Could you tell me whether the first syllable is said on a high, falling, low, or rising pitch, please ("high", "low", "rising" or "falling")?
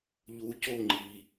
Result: low